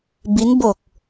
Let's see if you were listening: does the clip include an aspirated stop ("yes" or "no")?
no